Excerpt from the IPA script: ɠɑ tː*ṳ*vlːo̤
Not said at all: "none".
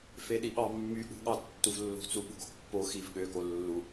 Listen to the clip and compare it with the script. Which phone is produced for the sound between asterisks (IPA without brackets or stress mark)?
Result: u